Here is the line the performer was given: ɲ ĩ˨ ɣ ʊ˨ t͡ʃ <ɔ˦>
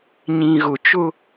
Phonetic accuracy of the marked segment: incorrect: ʊ˦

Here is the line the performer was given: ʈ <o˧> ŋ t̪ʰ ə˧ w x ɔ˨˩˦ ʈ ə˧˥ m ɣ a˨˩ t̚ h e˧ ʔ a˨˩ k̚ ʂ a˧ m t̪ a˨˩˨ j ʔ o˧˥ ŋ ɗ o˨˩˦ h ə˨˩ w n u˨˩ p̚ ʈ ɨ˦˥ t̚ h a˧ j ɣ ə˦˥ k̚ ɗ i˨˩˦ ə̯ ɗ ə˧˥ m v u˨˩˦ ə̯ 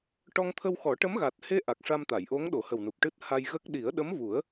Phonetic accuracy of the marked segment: incorrect: ɔ˧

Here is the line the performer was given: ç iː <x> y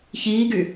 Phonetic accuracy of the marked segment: incorrect: ɡ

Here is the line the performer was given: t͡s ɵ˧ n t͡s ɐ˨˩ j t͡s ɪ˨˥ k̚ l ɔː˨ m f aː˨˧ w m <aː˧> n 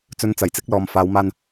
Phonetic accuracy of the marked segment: correct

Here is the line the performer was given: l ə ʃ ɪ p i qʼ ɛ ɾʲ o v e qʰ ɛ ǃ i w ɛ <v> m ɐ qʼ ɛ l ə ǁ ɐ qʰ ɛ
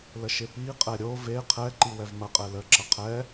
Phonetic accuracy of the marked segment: correct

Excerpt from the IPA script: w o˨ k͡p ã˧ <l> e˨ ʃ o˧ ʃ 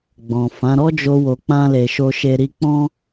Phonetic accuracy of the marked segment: correct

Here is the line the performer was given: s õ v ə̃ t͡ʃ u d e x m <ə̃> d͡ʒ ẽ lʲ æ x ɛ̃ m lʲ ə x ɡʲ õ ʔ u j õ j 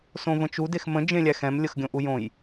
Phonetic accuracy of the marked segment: correct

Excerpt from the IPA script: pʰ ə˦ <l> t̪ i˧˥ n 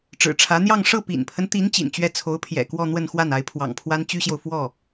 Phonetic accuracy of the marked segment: incorrect: n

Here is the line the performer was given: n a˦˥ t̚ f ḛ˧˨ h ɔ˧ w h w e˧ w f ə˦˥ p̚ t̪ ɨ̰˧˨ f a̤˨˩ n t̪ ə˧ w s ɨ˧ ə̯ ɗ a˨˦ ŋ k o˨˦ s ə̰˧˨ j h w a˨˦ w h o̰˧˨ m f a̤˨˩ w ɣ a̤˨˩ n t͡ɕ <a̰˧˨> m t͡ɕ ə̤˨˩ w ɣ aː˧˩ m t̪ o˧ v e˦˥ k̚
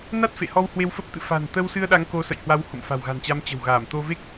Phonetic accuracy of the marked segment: incorrect: a˨˦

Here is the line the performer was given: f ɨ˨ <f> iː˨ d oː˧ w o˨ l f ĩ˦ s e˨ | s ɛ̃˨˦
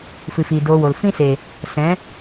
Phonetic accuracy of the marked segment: correct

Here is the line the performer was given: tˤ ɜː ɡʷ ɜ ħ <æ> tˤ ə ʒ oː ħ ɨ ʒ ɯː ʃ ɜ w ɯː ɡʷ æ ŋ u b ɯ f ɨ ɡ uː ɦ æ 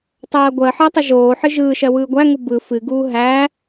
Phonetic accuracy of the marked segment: incorrect: ɜ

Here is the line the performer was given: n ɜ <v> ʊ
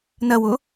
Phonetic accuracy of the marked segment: incorrect: w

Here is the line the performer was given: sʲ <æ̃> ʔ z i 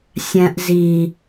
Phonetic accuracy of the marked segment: correct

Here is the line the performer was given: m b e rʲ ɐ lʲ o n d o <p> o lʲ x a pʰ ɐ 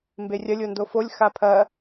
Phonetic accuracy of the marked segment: incorrect: f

